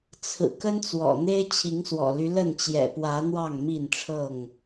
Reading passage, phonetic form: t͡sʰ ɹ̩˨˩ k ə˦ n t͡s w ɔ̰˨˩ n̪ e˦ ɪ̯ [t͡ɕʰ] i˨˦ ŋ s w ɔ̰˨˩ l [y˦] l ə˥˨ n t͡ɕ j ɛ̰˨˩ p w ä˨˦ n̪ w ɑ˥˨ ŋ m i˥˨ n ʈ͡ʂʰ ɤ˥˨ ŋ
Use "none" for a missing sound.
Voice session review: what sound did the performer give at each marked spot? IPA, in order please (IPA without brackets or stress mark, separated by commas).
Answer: t͡ɕʰ, y˦